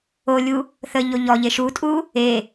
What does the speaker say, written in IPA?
o lʲ u | θ ə ʎ o ʎ ɔ ʎ e ʃ u tʼ u | e

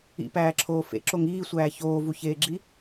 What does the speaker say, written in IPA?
ḭ p æː ǁʰ oː f ḛ ǁ o ŋ iː sʷ æː ç oː v u ç eː ɡ͡ǁ i

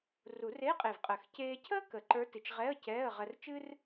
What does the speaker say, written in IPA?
r u˨˩˦ r e˧˥˧ qʼ e˨˩ v qʼ əː˨˩ x c eː˧ cʰ əː˥ k ə˨˩˦ ǃ ə˞˧˥ t ɨ˨˩ t͡ʃ ʁ ɛ˧˥˧ ə̯ c ɛː˧˥˧ ə̯ ʁ ɜ˧ r t͡ʃ ɨ˥ r

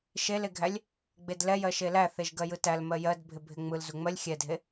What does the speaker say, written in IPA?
ʃ e l e ɡʱ æ lʲ | ɡ͡b e d l ɛ j ɜ ʃ e l æ θ e ʒ ɡ ɜ j ɯ t æ l m ɜ j ɜ d bʱ ɪ bʱ ɪ ŋ͡m ɯ l z u ŋ͡m ɜ lʲ xʲ ɛ dʱ e

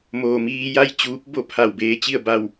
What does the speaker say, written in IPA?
m oː˩ m iː˧ j a˥˨ j t͡ɕ uː˧˥ p̚ b o˥˨ pʰ a˧˩ w b eː˧ t͡ɕ i˥˨ ə̯ b a˥˨ w

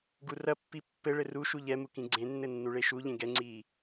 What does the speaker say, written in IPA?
ɡ u r ɐ pː i pː ɘ ɭ ɘ r u ʃ u ʎ ɛ m u k ĩ ɡ͡ǀ ẽ nː ɘ nː u ɭ e ʃ u ʎ ẽ ɡ ɛ ŋ͡ǀ iː

